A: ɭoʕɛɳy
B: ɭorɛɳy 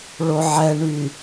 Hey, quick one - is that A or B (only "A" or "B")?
A